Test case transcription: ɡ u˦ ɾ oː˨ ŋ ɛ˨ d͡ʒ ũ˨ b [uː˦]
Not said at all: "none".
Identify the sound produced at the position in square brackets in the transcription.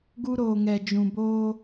oː˦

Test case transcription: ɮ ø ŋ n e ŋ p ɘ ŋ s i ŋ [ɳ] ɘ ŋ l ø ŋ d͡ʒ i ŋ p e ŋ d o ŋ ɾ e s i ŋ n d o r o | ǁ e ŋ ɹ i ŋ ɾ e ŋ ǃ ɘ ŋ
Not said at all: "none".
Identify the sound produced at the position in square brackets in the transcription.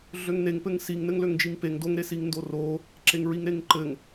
n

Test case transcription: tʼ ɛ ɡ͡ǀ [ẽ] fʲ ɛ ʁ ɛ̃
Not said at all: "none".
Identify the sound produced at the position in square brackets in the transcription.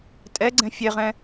ɛ̃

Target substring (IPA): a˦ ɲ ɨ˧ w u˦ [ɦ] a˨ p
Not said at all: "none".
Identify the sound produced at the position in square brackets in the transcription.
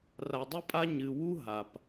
ɦ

